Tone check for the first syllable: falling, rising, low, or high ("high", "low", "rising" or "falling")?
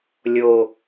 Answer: low